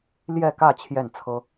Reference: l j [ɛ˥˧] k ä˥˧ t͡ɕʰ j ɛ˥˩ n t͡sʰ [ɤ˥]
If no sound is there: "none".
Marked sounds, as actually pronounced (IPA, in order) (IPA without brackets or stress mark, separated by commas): ɛ˥˧, ɤ˥